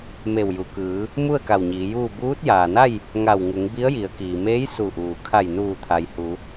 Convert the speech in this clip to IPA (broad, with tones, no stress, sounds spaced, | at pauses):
m e˧˩ w j u˩ k ɯː˩˧ | m u˥˨ ə̯ k a˧˩ w ɲ iː˩˧ j uː˥˨ b uː˧˥ t̚ j aː˩ n a˥˨ j | ŋ a˧˩ w ŋ u˩˧ ŋ b i˧˥ ə̯ j i˩˧ ə̯ k iː˩ m eː˧˥ j s u˧˩ ʔ uː˩ kʰ a˧˩ j n uː˧˩ t̪ʰ a˩ j h u˩˧